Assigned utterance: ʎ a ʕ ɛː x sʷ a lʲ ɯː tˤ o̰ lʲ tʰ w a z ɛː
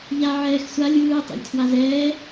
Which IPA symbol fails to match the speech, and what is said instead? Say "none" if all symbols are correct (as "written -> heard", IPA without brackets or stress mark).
none